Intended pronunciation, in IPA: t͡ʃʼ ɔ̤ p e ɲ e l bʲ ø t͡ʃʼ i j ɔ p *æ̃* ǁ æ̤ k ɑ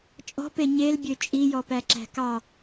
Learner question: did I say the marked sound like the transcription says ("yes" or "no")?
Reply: no